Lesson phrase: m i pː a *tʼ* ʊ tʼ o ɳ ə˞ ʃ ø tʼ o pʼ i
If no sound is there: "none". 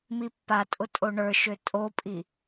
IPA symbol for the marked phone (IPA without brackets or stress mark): tʼ